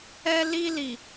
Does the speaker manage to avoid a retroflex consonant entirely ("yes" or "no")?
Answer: yes